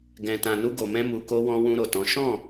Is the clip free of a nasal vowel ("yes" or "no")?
no